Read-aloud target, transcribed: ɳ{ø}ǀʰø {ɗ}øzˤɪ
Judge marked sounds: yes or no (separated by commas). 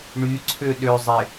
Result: no, yes